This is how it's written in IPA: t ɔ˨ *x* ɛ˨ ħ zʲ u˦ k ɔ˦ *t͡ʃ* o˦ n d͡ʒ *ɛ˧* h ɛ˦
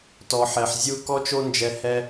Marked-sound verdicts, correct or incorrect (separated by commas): incorrect, correct, correct